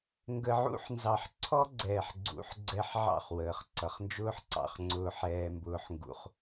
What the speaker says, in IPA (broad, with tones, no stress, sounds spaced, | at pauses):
ŋ ɡ ə˧ ʕ ṵ˦ ħ n z ɑ˧ ħ ǀʰ ɔ˦ ɡ͡ǀ ɛː˨ ħ ɡ͡ǀ ṵ˨˦ ħ ɡ͡ǀ ɛ˧ ħ ʕ ɑ̰˦˨ χ w əː˨ χ ǀ ʌ˨ χ n d͡ʒ ʊː˦ ħ ǀ ɑ̰˧ χ ŋ͡ǀ ʊː˧ ħ ɛː˧ m b ʊː˧ ħ ŋ ɡ ṵ˧ χ